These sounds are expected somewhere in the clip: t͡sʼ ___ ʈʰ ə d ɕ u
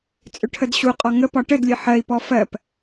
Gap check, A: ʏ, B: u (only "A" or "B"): A